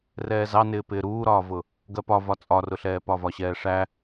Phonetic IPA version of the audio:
rɛːzɑnɪːpɪː ɾuːɾɒːvʊ | ɡɜpɒ vɒt͡sʼɒrʊɬɛː pɒvɒɕɛːʂæ

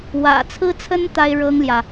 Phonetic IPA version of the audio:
wä̰˨˩t͡sʰɹ̩˥t͡sʰə˥n t̪a˥ɪ̯ɻɤ˥ŋljä˨

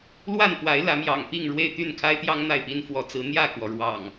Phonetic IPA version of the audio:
lwa˥˨npwa˨˦ɪ̯ lä˨˦mjɑ̰˨˩ŋpi˥˨ŋ ɻwe˥˨ɪ̯t̪y˥˨nkʰa˦ɪ̯t̪jɑ˦ŋ n̪a˥˨ɪ̯pi˦n fwɔ˨˦t͡sɹ̩˨˦ n̪jä˥˨kwɔ˩ ɻwɑ̰˨˩ŋ

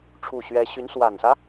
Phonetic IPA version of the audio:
ʈ͡ʂʰu˥˩ɕɥɛ˥ ɕy˧˥nswa˨˩nsä˦

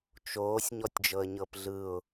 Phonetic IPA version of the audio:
t͡ʃoːsʲ ɲɔtʲd͡ʒɤə̯ɲɤpɮɯʊ̯

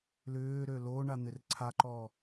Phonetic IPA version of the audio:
lʏːɾø lo ɳan̪ɪrǀʰaǃɔː

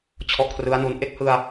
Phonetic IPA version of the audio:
t͡ɕʰɔ˦˥ʔkʰrɯ˦˥a̯nu˧n ʔe˥˩k̚hɯ˧a̯

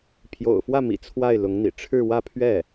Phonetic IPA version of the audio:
pʰjo̰˨˩ʊ̯fwä˥˩mḭ˨˩ t͡sʰwa˥˩ɪ̯ lʊ˧˥ŋn̪ḭ˨˩ ʈ͡ʂʰɻ̩˥˧ wä˥˧pʰɥɛ˥˩

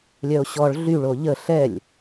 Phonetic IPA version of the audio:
lʲœo̯ɕɔɭ ɮyɭo ʎə ɬɛlʲ

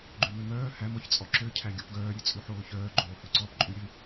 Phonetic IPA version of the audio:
ɡ͡ǃʉmømœː hæm ɔçt͡sʼɔǁø cʰæɡʲɔpɡœː ɾʲʉt͡sʼʉħoːçœː ɡ͡ǃoːhʉǀɔp ǃʼʉɾʲø

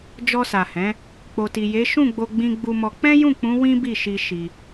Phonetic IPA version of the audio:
d͡ʒɔ˧sa˨hɛ̃˨˦ | k͡po˨ti˨ je˨˦ʃũ˦˨ɡ͡bo˧ɡ͡bĩ˧ ɡ͡bu˧mɔ˧ k͡pɛ̃˦jũ˦˨k͡pũ˨˦ wĩ˦bi˦˨ ʃi˧ ʃi˧

